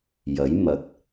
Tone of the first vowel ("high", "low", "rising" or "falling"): rising